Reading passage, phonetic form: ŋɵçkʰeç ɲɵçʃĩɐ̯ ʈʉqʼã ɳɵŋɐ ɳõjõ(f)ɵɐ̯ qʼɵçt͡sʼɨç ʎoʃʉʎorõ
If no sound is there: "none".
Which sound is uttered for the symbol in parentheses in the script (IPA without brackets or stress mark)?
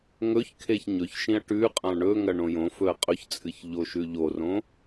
f